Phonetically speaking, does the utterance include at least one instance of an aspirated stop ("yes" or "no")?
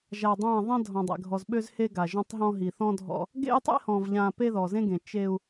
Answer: no